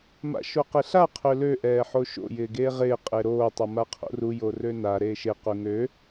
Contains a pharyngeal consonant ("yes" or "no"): yes